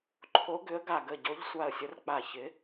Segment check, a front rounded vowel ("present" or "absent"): present